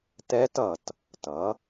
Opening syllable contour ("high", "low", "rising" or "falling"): rising